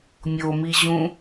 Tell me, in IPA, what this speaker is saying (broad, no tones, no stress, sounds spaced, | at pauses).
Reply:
mʲ o m i ʑ ũ